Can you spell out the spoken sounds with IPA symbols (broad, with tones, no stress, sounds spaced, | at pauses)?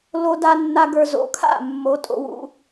l o˧ d a˧ nː a˧ ɡ ə˞˧ z o̰˩˧˩ kʰ a̰˥˩ mː o˨˥ tʼ o̰˧ w ṵ˧